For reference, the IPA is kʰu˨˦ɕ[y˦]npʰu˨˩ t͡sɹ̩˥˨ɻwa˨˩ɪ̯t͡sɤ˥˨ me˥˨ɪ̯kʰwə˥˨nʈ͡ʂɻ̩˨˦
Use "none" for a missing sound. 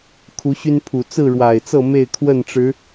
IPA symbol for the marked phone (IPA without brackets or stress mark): y˦